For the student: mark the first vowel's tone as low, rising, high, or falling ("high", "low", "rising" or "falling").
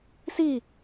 falling